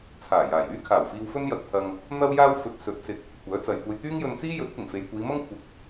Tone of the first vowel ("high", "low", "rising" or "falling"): low